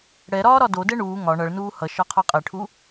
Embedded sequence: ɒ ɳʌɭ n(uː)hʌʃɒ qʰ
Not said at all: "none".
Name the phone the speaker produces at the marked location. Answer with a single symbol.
uː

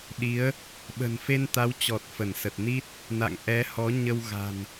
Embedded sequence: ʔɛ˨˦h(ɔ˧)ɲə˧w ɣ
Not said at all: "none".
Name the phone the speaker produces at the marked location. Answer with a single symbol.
ɔ˨˦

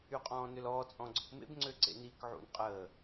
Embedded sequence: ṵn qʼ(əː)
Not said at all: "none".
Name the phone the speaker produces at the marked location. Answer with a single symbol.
əː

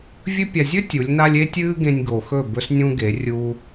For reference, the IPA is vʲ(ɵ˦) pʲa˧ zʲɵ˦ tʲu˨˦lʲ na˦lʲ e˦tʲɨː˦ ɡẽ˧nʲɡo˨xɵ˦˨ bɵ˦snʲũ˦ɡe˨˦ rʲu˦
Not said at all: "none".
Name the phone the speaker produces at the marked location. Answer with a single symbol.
ɵ˦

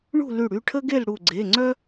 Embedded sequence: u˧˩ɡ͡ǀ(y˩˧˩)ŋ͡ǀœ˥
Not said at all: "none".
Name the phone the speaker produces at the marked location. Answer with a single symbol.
e˩˧˩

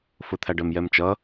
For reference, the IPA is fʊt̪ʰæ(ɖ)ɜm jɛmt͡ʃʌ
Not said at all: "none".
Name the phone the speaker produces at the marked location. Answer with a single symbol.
ɖ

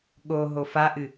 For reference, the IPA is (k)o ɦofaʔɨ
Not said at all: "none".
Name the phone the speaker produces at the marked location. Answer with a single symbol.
ɠ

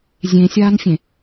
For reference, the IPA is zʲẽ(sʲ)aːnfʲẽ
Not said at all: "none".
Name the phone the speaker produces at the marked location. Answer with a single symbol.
sʲ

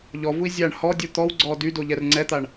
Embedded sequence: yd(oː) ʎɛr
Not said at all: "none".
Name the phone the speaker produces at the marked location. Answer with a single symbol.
o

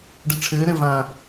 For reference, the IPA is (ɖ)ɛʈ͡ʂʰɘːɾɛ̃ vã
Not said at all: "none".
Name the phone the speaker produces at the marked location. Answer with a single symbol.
ɖ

